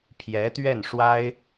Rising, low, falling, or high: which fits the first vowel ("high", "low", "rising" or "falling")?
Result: rising